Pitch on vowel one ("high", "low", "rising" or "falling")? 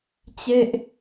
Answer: high